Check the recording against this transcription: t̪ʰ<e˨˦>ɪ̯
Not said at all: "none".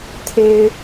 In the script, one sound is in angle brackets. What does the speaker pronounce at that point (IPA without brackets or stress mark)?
e˦